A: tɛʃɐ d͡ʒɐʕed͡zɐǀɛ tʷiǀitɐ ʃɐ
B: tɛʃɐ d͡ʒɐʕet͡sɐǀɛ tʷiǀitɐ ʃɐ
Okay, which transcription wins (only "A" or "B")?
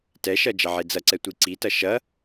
A